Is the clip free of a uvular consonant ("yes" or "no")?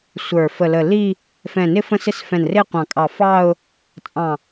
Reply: no